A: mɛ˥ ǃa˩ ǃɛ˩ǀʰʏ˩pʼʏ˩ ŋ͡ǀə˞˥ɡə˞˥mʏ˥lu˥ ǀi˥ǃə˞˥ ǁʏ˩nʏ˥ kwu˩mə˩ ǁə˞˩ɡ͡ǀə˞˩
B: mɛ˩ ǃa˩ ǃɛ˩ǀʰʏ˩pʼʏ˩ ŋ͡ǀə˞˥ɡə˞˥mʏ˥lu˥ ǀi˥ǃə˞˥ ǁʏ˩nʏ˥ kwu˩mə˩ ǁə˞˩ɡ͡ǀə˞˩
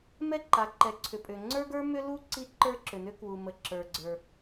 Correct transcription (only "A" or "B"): A